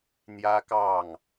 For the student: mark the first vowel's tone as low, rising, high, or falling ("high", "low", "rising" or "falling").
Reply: high